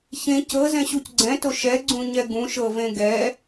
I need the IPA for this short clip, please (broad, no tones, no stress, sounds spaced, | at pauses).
ç ẽ c ɤ z ɛ̃ ɕ u c ɡ͡ǀ ɛ̃ t o ʃ ɛ ɡ͡ǀ ũ ɲ ɛ ɡ ũ ʃ ɤ v ẽ ɡ ɛ